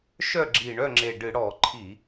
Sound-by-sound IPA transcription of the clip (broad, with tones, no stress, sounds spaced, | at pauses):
ʃ œ˥˨ ɡ͡ǁ i˧˩ ɳ œ˥˨ ŋ͡ǁ e˧˩ ɖ ɨ˧˩˧ ɽ ɔ˧˩˧ ǃʰ i˧˩˧